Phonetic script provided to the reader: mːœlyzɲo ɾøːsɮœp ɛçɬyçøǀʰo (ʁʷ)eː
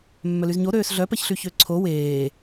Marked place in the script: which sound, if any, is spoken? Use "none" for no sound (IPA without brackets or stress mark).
w